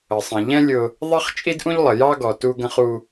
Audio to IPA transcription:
ə˨sˤɛ̃˨ ʎɛ̃˦ lʲʊ˦ | ðˤɛ˦χt͡ʃʼi˦dʔũ˦ʎlˠə˨ jɑ˦ɡɔ˨ tu˦ ɡə̃˦χu˦

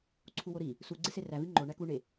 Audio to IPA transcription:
ǀʰuwoɾi | su ɡ͡ǀeseræ viŋ͡ǃo ɳækuɳe

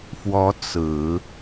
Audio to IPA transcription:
fwɔ˧˥ t͡sɹ̩˨˩˦

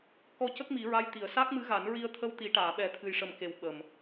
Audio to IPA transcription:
kɔ˧cə˦˥k̚ mi˨˩˦ɹa˧˥j t̪i˨˩ə̯ sa˦˥k̚mɨ˧˥ɣa˨˩˦n ɹi˧ə̯ t̪ʰə˧wt̪i˨˩˦ʈaː˨˩˨ɓɛ˨˩˦ t̪ʰɨ˨˩jʂə˨˩m ke˨˩w ɓə˨˩m

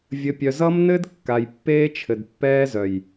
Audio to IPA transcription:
vʲɘ˨pʲœ˨zʌ˦mnɘ˦d kːa˨jpːeː˦t͡ʃʰɘ˨d pːɛː˦zœ˨j

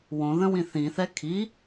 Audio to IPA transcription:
wõ ðə̃wĩθĩθɛ kʰi

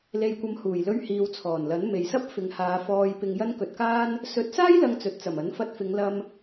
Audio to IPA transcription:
le˧jkʷɐ˧m huː˨˩jlɵ˧ɥ hiː˨wt͡sʰɔː˨˩nlɐ˨˥n me˨jsɐ˥p̚ fɪ˨ŋhaː˨˧ fɔː˧jpɪ˧ŋ jɐ˥nkɵ˧t̚kaː˥n | sɵ˨˥t̚saː˥j lɐ˧ŋt͡sɵ˨t̚t͡sɐ˨˩m ɐ˨˥nfɐ˧t̚fɪ˨˧ŋlɐ˧m

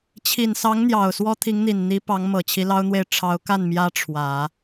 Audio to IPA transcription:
t͡ɕʰi˨˩nsɑ˧˥ŋn̪jɑ˨˩ʊ̯ swɔ˥t̪ʰi˧˥ŋn̪i˨˩n n̪i˧˥pɑ˧˥ŋmɤ˨˩ t͡ɕʰi˧˥lɑ˥ʊ̯n̪we˥˩ɪ̯ ʈ͡ʂʰɑ˧˥ʊ̯ka˥˩n mjä˥ʈ͡ʂʰwä˨˩˦

